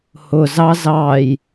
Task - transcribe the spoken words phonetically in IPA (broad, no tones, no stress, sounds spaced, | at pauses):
h ʊ z ɑ z ɑ j